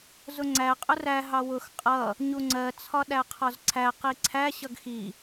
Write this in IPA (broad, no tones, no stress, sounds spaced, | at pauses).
z ʊ ŋ͡ǀ æ qʼ ʊ r æ ɦ ɑ w ʊ x qʼ ʌ | ɲ u ŋ͡ǀ ɜ t͡sʰ ɒ ɗ æ qʰ ɒ z ǀʰ æ q i ǀʰ æ ɕ ʌ ɡ x i